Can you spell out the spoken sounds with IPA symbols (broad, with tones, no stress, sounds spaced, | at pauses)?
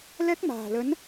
l ɛ˦˥ k̚ m a̤ː˨˩ l ə˨˦ n